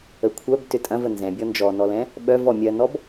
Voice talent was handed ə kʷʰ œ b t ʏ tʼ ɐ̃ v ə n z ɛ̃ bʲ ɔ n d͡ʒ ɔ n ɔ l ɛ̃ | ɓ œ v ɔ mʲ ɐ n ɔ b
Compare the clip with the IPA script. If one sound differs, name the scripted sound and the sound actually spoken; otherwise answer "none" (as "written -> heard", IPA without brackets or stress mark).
none